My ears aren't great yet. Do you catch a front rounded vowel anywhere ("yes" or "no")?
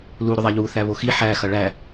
yes